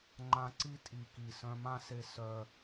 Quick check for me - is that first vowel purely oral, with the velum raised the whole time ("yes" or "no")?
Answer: no